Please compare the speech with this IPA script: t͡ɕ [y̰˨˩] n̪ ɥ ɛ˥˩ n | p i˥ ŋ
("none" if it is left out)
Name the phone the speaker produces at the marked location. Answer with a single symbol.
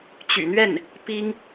y̰˨˩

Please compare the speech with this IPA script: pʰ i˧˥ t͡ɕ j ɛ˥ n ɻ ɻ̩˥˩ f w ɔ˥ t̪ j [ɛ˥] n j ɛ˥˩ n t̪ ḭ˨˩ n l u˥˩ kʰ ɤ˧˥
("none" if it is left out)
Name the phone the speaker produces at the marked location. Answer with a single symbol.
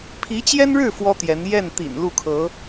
ɛ˧˥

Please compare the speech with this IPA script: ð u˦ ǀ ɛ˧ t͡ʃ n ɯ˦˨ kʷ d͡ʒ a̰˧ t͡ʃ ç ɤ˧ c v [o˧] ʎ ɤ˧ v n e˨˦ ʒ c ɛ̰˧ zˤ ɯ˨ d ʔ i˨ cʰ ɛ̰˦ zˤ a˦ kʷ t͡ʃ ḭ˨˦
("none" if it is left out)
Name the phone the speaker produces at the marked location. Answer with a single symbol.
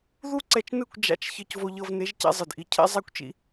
o˧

